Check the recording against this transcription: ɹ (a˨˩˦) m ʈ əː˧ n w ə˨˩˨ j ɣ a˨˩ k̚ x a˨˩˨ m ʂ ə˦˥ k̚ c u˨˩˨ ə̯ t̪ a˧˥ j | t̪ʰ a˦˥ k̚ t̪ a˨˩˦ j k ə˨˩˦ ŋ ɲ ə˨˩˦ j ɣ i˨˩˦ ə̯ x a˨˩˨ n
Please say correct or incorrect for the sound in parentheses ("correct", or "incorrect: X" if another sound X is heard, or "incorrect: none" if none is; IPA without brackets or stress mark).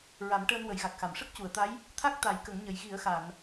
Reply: correct